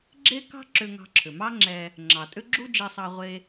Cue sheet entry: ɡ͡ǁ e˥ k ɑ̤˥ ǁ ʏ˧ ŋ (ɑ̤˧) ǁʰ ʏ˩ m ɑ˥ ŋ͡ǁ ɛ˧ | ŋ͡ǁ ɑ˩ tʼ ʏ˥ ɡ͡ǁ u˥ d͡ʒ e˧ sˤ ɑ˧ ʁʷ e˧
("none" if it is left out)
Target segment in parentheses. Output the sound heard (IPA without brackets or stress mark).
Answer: ɑ̤˧